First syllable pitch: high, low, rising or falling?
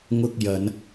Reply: high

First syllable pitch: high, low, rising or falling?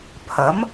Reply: rising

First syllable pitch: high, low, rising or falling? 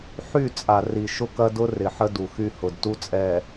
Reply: falling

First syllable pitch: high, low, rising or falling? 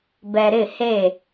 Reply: low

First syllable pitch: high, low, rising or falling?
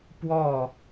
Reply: falling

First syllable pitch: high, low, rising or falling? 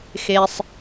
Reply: low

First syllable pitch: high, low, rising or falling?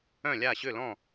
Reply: falling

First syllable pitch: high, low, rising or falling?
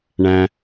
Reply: low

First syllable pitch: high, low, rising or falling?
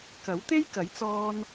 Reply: rising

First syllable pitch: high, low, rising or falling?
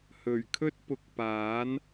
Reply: low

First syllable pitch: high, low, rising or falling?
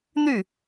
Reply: falling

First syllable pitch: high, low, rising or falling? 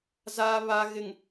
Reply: low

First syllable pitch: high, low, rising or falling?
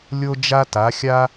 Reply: high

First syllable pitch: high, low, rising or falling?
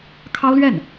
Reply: high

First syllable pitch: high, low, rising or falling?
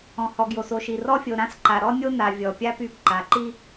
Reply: low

